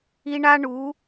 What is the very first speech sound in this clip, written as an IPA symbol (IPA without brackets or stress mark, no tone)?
i